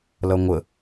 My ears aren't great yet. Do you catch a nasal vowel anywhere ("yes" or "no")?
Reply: no